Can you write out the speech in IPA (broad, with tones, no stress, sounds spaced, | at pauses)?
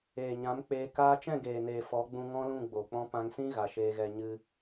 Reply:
eː˨ ɲ ã˨˦ m k͡p eː˧ k aː˦ t͡ʃ ɛ̃˦˨ ɡ eː˨ n eː˨ f ɔ˨˦ ɡ͡b ũ˧ ŋ ɔ̃˦ l ũ˦˨ ɡ͡b o˨ k͡p ɔ̃˦ p ã˧ ŋ s ĩ˦ ɣ a˨ ʃ eː˧ ɣ ɛ˧ ɲ ɨ˧